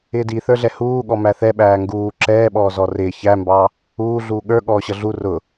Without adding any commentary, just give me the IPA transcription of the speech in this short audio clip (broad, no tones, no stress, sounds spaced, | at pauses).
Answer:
ɪː d i θ ə˞ ɮ ɛ h uː ɠ ɔ m æ θ ɛ ɓ æː ŋ ɡ uː ǁ ɛː ɓ ɔː z ɔ r ɪː ç æ m b ɑ | uː ɮ uː ɠ ə˞ ɠ ɔː ɕ ʌ ɮ u r ʊ